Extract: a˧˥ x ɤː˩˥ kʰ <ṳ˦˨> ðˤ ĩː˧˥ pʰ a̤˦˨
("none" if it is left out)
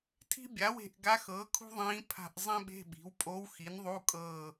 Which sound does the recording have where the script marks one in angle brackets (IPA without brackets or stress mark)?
ṳ˥